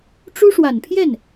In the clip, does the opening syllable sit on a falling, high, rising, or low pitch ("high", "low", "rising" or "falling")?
high